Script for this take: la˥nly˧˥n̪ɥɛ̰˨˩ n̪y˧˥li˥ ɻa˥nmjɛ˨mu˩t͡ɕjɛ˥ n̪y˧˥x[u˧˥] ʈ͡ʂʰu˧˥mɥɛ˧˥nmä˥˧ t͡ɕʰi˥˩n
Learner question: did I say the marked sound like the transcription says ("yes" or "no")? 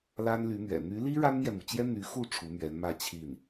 no